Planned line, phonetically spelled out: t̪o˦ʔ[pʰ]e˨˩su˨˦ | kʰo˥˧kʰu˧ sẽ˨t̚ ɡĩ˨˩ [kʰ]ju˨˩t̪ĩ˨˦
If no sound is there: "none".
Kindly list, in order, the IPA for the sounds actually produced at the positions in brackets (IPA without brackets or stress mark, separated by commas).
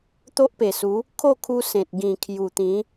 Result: p, kʰ